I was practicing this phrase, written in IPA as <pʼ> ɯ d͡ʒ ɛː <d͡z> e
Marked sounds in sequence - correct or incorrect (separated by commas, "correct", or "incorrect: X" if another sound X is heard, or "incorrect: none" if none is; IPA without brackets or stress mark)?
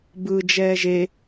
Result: incorrect: b, incorrect: ʒ